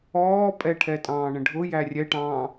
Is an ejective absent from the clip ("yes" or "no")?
no